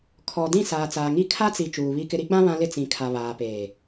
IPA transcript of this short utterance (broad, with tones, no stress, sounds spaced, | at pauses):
kʰ ɔ˨ d ĩ˦˨ s aː˨ t͡s aː˨ ŋ i˦˨ kʰ a˦ t͡s i˨ t͡ʃ uː˨ β i˦ k ɪ˦ ɾ i˦ ɡ͡b ã˦ β ã˦ l ɪ˦ t͡s ĩ˨ kʰ a˨ β aː˨ p eː˨